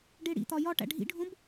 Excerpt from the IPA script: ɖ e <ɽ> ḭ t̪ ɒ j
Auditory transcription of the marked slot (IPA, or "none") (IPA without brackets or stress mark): ɽ